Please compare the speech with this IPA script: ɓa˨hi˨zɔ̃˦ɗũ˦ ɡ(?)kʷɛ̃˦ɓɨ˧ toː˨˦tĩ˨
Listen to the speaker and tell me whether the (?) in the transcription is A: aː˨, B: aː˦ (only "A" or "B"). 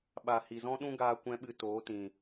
B